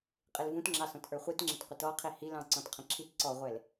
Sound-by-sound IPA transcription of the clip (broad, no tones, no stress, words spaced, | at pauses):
qʼɪlvũtŋ͡ǁɑsɔ̃t ʔə˞χʷitŋ͡ǁɪt qʷɪtɔqʰi hilɑ̃ ǀɔ̃tqʰə̃ǁʰit ǀɔʁʷɛl